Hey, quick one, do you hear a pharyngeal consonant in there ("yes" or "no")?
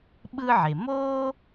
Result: yes